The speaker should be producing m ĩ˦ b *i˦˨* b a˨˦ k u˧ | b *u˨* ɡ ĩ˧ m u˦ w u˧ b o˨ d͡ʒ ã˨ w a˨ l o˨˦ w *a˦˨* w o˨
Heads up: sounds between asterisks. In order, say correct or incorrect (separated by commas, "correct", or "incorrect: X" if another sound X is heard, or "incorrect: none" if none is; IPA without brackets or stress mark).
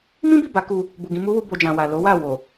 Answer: correct, correct, correct